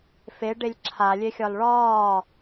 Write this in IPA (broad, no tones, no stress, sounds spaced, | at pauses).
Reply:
f e ɖ e lʲ ǁʰ a lʲ e xʲ ɒ l ɭ ɒː